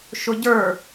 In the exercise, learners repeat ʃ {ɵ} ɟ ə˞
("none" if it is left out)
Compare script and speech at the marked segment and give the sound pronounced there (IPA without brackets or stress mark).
ʊ